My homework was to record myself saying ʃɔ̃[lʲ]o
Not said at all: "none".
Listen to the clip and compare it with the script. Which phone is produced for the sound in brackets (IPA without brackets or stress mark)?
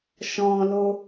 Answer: l